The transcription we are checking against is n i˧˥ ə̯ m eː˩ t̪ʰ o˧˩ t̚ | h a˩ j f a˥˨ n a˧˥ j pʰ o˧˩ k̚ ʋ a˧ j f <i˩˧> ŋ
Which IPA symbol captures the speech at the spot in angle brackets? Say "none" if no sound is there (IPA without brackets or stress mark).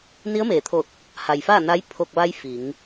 i˩˧